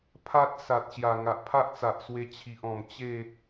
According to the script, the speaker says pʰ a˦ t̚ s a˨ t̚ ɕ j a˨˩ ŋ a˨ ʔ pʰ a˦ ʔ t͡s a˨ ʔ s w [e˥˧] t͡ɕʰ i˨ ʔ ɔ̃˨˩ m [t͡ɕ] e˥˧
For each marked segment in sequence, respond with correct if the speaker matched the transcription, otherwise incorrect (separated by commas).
incorrect, correct